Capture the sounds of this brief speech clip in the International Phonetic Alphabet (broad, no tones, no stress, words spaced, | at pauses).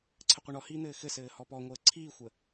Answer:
ǀʰɘqʷɘɳɔhiː n̪ɘːxɘsɘː hɔpɔŋʷəː ǀʰiːxʷə